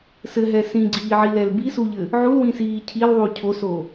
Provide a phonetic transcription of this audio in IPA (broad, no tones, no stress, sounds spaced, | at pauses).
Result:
s ɘ ɦ ɛ s ĩ ɡ͡ǀ iː ʕ i l ɛ l b i s u ʎ ɘ | ʕ u l w ĩ s iː cʰ i l ðˤ u cʰ o s o